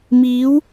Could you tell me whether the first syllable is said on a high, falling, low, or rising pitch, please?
rising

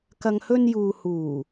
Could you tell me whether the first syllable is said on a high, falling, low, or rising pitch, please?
low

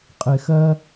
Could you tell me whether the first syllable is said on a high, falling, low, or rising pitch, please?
low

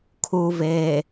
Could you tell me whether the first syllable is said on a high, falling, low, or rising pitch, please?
low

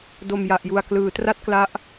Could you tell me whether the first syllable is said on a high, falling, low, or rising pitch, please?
low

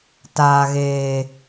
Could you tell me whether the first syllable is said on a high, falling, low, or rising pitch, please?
low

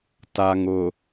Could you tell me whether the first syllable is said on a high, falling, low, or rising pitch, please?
low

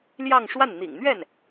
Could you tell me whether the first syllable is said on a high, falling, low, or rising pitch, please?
falling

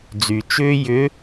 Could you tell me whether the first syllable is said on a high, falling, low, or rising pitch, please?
low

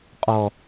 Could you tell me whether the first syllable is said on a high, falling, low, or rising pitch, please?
low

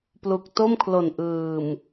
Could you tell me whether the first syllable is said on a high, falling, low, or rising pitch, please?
low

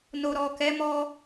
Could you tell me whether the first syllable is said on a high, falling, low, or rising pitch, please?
low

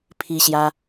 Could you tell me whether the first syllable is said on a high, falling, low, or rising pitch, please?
high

